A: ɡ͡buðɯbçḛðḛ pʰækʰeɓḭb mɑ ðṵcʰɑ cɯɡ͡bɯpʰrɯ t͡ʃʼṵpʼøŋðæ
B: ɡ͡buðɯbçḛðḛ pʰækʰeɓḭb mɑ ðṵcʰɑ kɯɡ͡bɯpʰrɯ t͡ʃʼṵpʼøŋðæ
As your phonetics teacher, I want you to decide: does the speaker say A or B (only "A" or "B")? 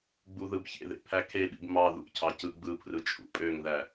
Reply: A